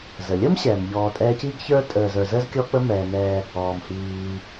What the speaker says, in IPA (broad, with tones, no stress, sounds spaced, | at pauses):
z ə˩ lʲ ə˥ m ɕ ɛː˩ m ʎ ɔː˨ tʼ ɛː˦ c i˥ ɡ ç ə˞˥ tʼ əː˨ z ə˞˨ z əː˥ z kʲ ɔ˦ k͡p ə˦ m ɛː˩ n ɛː˨ | ɔː˩ m h iː˩